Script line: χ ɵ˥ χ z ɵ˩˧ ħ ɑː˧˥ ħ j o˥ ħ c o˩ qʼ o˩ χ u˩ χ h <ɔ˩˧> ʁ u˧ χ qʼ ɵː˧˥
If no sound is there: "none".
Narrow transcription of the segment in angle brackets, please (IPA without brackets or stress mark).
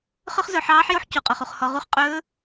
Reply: ɔ˩˧